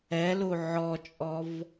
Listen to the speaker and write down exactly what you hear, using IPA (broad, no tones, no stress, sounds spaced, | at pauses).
ɛ l u ʕ ɔ t͡ʃʼ ɔ v